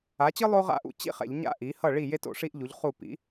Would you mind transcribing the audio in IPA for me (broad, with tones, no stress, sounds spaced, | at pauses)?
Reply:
a˩˥ t͡ɕ ɯ˥ lˠ o˥ ʁ a̰˥˩ ʔ ṵ˥˧ t͡ɕ ḭ˥˩ χ ɛ̰˧˩˧ ʎ ɲ a̰˥˧ ʔ i˩˥ h ʌ˥˩ ɭ i˥˩ j e˥ t o̰˧˩˧ ʂ i˥ ʔ ʎ u˩˥ ʎ χ u˥˩ p ḭ˩˥